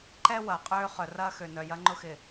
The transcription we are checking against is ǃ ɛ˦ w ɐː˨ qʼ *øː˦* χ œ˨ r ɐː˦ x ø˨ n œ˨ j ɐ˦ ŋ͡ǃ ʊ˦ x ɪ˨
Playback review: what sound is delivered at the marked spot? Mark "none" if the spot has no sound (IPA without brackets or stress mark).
øː˦